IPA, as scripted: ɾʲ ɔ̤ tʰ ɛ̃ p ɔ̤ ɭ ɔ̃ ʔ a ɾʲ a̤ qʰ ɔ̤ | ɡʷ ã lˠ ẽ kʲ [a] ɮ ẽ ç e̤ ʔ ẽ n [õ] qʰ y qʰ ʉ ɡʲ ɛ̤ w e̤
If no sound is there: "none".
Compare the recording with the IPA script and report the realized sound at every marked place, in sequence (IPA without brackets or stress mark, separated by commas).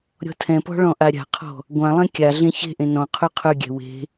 a, ɔ̃